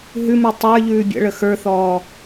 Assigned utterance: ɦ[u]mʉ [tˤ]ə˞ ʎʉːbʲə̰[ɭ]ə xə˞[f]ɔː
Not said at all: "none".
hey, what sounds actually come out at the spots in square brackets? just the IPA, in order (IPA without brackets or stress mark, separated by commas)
ʉ, tˤ, ɭ, θ